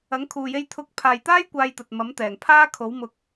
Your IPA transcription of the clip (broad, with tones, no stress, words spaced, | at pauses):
ɐ˨˥ŋkʰuː˨je˧j t̪ʰʊ˧k̚ pʰaː˨jt̪aː˥j kʷaː˧jt̪ɐ˨t̚mɐ˨˥mt̪ɛː˨˩ŋ pʰaː˥kʰo˨˥w mʊ˨k̚